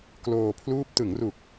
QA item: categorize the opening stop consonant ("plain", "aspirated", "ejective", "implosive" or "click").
plain